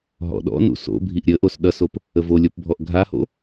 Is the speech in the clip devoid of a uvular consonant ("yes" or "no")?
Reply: yes